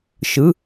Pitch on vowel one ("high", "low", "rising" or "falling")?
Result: rising